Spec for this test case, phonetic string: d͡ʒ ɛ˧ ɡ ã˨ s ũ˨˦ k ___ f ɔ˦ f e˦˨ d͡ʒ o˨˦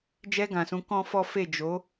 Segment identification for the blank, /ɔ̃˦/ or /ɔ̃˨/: ɔ̃˦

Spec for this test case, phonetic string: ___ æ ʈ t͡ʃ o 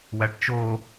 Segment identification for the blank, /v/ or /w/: w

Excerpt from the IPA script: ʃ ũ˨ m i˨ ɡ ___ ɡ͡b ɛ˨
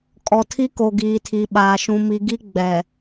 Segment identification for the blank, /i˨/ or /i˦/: i˦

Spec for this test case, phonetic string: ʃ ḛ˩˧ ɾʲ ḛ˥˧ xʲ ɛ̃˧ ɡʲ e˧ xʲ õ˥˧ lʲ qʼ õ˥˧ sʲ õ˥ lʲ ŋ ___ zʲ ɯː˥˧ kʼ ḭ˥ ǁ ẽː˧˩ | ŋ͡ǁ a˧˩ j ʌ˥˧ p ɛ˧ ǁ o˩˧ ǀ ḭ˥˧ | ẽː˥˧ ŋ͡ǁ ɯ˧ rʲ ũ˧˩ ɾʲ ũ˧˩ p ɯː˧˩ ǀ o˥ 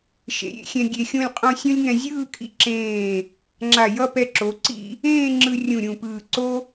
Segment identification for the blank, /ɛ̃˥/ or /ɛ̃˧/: ɛ̃˧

